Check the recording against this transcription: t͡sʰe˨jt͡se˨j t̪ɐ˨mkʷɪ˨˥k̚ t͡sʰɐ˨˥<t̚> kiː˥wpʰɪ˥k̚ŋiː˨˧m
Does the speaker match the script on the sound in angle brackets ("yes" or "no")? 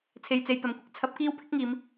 no